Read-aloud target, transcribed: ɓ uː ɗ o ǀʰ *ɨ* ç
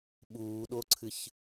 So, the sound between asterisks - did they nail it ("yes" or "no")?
yes